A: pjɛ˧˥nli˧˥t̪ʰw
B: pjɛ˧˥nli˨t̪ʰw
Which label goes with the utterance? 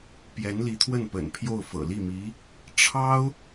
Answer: A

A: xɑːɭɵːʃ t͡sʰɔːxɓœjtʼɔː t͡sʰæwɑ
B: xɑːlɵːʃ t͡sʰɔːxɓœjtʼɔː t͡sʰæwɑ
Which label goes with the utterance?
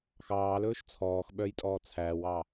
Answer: B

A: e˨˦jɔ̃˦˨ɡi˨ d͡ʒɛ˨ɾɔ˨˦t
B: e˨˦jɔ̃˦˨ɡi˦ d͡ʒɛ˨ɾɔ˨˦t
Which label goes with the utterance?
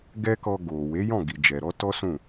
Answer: A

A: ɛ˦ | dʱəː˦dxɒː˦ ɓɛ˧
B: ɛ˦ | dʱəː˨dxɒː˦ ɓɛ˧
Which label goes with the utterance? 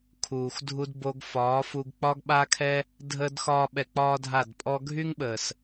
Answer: A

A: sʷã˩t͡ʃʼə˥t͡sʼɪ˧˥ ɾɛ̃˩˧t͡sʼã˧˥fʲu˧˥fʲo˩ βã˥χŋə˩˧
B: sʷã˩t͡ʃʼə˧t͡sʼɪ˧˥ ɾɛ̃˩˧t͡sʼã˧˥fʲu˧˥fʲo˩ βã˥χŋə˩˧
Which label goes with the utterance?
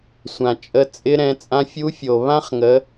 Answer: B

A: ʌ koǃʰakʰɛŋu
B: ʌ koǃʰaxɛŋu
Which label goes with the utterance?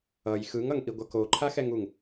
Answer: B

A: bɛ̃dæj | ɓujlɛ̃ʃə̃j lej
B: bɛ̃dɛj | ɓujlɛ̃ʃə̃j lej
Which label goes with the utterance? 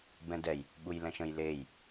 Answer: B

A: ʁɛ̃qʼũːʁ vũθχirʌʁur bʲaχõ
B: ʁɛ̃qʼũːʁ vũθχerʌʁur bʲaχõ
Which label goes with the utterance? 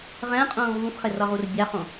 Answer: B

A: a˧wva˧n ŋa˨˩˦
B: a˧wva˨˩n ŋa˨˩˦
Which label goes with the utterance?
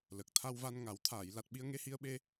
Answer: A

